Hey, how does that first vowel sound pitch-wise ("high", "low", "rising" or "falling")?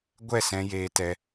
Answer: falling